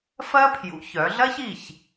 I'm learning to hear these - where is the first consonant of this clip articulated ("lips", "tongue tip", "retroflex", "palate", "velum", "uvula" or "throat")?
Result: lips